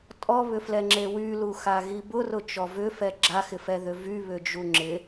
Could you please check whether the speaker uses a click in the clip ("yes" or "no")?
yes